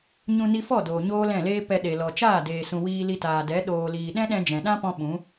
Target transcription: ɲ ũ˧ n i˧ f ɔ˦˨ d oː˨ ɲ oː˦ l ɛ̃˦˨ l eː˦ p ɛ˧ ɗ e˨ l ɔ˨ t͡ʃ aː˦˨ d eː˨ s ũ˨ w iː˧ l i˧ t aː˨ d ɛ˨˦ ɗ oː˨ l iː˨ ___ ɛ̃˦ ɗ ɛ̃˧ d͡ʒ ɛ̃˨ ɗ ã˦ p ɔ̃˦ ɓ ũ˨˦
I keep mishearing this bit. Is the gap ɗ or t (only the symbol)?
ɗ